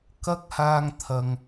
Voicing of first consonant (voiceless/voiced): voiceless